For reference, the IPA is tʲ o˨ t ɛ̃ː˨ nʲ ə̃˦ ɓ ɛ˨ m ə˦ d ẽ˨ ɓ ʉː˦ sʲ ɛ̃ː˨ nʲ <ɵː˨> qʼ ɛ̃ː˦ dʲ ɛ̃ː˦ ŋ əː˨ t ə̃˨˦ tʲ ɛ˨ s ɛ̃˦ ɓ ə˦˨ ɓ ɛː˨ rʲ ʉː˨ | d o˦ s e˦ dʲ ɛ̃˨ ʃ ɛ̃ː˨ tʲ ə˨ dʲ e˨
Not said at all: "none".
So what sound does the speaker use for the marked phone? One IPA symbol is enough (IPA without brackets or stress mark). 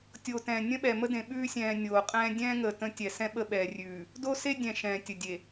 oː˨